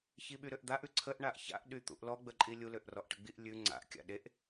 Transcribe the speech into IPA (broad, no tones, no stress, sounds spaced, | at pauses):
ç i ɓ y ɾ ø ʔ d̪ a ʔ ʉ ǀʰ ə ʔ ɳ a ʔ ç a̰ ʔ ɗ y t̪ ṵ ʔ l ɔ ɡ͡b ə ǃʼ i lʲ u l ø ʔ r ɔ ʔ ʈ ə ɡ͡b i ʔ lʲ ʉ ŋ͡ǀ a̰ ʔ kʲ a̰ ɗ e ʔ